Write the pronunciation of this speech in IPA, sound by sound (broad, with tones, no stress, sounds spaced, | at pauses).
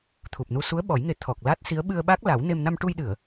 t̪ʰ u˨˩ p̚ n u˧ s u˧˥ ə̯ ɓ ɔ˨˩˦ j ŋ e˨˩˦ t̪ʰ ɔ˨˩ k̚ l a˦˥ t̚ s i˧˥ ə̯ ɓ ɨ˧ ə̯ ɓ a˦˥ k̚ l a˨˩˦ w n e˧ m n a˧ m ʈ u˧ j ɗ ɨ˨˩˨ ə̯